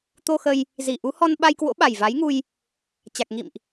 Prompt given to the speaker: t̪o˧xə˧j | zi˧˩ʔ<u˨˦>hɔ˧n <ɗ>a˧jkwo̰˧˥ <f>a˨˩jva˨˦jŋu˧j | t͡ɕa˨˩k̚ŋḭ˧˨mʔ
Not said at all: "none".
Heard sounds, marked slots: u˨˦, ɓ, ɓ

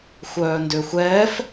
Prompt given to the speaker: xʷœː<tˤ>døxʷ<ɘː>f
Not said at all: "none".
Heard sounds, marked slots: n, ɛː

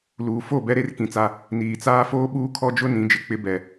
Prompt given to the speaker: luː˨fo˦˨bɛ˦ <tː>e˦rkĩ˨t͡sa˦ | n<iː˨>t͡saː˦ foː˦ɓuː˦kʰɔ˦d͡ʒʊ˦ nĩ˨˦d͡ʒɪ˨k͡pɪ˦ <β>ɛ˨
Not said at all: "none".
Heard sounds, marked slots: ɾ, iː˨, b

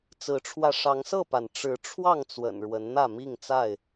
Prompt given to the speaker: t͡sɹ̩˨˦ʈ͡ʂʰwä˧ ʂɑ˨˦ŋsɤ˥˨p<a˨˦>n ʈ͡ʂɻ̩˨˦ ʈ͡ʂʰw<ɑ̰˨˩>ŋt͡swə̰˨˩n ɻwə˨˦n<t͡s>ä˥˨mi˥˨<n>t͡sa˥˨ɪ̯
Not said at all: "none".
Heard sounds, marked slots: a˩, ɑ˥˨, n̪, ŋ

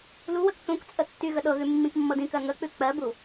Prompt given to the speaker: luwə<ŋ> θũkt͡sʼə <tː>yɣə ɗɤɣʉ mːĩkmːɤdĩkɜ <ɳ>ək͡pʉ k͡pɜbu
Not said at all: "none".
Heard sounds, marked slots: k, tː, ŋ

